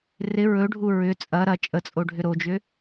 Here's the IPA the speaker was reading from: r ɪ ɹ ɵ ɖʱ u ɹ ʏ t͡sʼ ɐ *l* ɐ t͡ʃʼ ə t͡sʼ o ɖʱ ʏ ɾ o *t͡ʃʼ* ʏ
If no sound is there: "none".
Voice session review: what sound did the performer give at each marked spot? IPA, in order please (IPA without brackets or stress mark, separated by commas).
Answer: ɾ, d͡ʒ